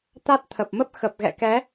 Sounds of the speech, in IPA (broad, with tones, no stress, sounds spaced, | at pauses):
t̪ a˦˥ t̚ t̪ʰ ə˨˩ p̚ m ə˦˥ p̚ x ə˨˩ p̚ ɣ ɛ̰˧˨ k ɛ˨˦